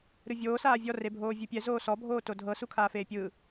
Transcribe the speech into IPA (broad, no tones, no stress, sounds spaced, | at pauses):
ɾ ɯ vʲ oː s aː vʲ ɔ r e bʱ oː vʲ u pʲ ɛ z oː s ɔ bʱ oː t o dʱ ɤ s u kʰ aː f eː pʲ ɯː